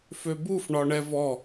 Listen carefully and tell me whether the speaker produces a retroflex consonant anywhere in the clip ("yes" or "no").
yes